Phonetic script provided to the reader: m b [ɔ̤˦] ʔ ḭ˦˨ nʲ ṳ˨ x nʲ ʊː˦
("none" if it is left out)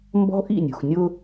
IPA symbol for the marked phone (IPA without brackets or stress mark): ɔ̤˦